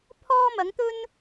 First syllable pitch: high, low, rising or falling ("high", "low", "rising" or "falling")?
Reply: high